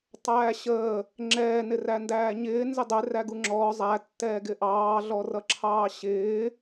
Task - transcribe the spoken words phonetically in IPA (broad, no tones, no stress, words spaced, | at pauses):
tˤæːɕəː | ŋ͡ǁɛːnɪræ ndæːɲɪː nzɪdˤɪ ræɡuŋ͡ǁɔː zˤætːɛː ɡɪʔɑː ɮɔrʌǁʰɑːɕɪː